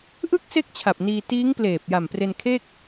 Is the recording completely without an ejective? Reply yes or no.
yes